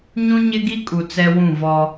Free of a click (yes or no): yes